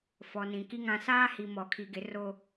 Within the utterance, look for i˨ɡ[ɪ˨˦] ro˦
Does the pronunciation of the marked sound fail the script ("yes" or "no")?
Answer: no